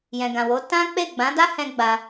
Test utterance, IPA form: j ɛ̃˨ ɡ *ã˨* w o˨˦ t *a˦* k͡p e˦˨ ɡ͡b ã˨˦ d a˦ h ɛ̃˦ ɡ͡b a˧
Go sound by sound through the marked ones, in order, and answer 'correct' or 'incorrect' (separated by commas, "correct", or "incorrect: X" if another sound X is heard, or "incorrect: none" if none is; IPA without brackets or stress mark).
correct, incorrect: ã˦